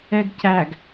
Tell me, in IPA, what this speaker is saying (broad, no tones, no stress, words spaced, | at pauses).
ɛɡcæɡ